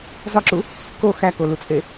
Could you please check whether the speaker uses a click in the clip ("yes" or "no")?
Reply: yes